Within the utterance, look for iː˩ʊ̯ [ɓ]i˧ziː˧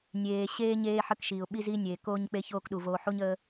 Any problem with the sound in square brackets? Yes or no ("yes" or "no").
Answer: no